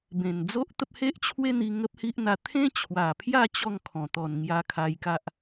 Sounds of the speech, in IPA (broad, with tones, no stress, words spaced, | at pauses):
bẽ˨˩nd͡zo˦ʔt̪ə˦p̚ he˦ʔt͡ɕʰwe˦n̪i˧ ŋə˦p̚hi˦ʔn̪a˧ t̪ʰẽ˦t͡ɕʰwa˨˩pʰja˥˧ t͡ɕɔ˥˧ŋkʰɔ̃˨˩t̪ɔ˨˩nŋja˧ kʰa˧jka˦ʔ